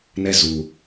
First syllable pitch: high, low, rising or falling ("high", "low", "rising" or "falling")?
falling